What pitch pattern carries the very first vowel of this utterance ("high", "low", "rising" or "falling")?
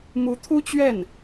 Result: rising